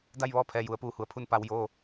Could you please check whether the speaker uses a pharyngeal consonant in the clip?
no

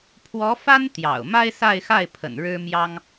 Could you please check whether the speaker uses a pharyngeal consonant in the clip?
no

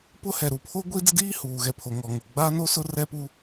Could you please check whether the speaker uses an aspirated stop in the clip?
yes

